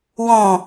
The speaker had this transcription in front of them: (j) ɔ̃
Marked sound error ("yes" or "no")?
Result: yes